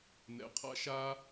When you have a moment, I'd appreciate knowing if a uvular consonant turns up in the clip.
yes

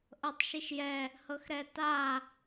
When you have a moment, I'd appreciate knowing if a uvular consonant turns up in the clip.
no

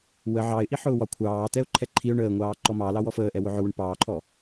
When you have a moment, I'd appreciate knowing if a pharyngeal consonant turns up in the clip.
yes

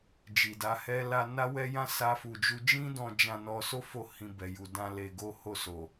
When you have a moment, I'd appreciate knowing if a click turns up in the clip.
no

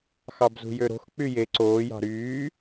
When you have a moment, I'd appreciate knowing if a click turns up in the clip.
yes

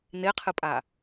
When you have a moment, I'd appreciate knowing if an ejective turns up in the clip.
yes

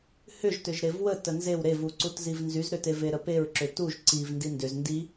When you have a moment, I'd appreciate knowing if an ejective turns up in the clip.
no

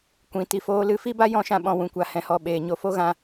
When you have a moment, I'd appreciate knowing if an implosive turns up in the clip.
yes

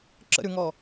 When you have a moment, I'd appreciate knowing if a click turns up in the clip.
yes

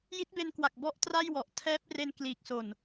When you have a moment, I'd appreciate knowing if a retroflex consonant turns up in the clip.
no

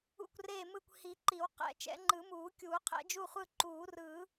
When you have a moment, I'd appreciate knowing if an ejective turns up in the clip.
no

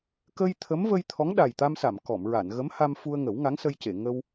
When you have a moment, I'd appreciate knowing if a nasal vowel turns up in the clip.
no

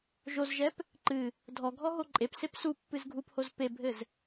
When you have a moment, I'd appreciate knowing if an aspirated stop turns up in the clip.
no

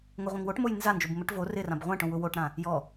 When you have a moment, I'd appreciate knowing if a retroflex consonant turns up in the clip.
yes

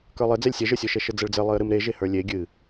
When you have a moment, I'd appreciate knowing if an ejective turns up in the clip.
no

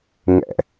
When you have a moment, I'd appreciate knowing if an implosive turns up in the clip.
no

